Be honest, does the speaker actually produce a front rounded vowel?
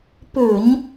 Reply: yes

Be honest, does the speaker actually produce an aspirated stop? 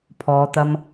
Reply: yes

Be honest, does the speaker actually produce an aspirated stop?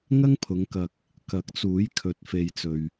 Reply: yes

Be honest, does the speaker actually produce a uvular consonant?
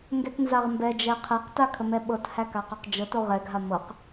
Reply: yes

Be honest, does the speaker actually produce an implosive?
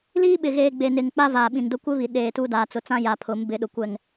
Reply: yes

